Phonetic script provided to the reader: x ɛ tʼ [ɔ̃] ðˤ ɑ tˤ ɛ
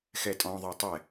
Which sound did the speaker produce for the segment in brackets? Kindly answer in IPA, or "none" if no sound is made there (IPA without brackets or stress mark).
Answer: ɔ̃